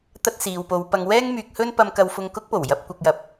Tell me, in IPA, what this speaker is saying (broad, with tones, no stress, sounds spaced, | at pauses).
t̪ ɐ˥ t̚ s iː˨ w p o˨˧ w p ɐ˨ ŋ w ɛː˥ ŋ m yː˨ k̚ h ɵ˥ n p ɐ˧ m k ɐ˧ w f ʊ˧ ŋ k ʊ˥ k̚ p o˨˩ w j ɐ˧ p̚ kʷ ɐ˨ k̚ j ɐ˨ p̚